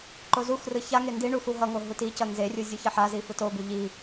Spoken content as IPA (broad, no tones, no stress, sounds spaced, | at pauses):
ǃ o z u x r ɯ ç a ŋ e n d i ɳ u x u ɦ ʌ ŋ o ɦ u t i c ʌ n z e rʲ u zʲ u ç ʌ ħ a z i f ɯ t o b u ʎ i